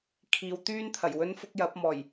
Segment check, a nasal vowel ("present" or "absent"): absent